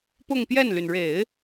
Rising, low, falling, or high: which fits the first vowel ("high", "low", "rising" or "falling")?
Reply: falling